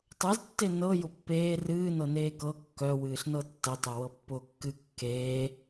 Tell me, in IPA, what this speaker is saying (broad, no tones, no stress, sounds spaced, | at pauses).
tˤ ɤ z tː e n ɤ j ʊ pː eː r ɨː n ɤ n eː k ɤ kː œ w ɨː ɬ n ɤ tː ə tˤ o w ɤ pː ʊː kː ɨ kː eː